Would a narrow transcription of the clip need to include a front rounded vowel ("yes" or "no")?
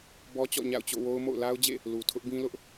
no